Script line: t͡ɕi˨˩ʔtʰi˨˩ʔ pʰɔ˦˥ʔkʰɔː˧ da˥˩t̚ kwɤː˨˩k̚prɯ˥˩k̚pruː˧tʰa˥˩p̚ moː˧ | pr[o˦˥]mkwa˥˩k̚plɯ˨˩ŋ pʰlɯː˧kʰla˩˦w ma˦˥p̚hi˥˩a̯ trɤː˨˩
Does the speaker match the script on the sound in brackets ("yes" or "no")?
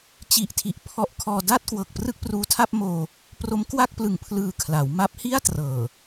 yes